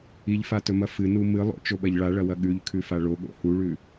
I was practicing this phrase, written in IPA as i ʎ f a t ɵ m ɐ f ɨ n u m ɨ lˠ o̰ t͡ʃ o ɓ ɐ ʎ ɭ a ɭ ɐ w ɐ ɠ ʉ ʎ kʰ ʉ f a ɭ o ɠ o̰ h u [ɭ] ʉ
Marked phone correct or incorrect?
correct